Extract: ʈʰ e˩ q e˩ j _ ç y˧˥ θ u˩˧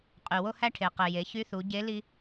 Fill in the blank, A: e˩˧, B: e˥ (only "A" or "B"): A